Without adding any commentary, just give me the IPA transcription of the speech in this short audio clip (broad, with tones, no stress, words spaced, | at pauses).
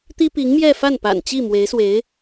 t̪i˥pi˧˥ŋmjɛ˥˧fa˥˩n pa̰˨˩nt͡ɕi˥˩mwe˧˥ɪ̯swe˧˥ɪ̯